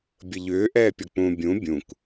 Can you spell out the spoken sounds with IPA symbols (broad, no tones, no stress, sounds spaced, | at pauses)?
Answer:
bʲ ə ʎ ʏː ʔ ɛː pʲ ɔ k͡p ũ bʲ ũ bʲ ũ k